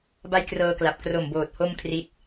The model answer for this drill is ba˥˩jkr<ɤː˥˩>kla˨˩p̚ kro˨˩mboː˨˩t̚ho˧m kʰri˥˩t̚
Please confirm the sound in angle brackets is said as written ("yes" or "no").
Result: no